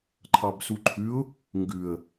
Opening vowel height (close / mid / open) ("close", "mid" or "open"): open